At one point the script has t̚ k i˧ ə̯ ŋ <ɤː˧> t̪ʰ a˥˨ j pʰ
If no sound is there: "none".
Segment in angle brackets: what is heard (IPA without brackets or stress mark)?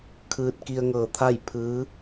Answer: ɤː˧